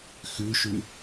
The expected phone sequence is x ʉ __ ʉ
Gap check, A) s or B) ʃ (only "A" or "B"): B